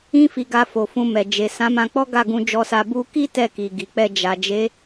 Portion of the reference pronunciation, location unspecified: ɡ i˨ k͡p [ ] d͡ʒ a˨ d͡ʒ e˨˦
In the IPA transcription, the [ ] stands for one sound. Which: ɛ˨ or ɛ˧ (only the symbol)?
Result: ɛ˧